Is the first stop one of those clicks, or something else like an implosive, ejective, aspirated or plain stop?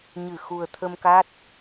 aspirated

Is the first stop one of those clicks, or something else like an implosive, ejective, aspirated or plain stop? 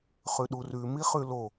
implosive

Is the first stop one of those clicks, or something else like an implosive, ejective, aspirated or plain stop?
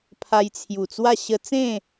aspirated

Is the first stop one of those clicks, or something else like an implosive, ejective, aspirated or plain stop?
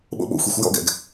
implosive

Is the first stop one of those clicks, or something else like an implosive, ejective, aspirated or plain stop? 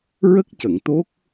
plain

